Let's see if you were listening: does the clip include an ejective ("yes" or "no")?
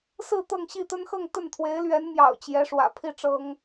no